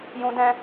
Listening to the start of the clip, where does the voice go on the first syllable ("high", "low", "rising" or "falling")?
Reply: high